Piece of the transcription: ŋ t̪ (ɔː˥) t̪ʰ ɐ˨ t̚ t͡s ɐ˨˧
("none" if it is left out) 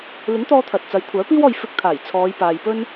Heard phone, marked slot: ɔː˥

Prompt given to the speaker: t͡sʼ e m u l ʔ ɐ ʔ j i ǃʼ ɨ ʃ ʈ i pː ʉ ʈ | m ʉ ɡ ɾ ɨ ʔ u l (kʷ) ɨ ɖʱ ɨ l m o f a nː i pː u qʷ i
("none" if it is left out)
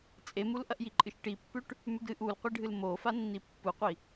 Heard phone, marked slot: qʷ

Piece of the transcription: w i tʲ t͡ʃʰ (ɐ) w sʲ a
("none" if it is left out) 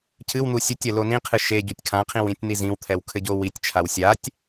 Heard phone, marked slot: a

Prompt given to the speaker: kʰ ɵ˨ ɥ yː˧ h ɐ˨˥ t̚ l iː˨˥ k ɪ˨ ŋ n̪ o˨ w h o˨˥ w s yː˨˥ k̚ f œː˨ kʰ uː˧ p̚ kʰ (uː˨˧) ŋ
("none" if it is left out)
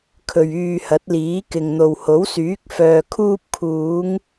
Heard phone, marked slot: uː˨˧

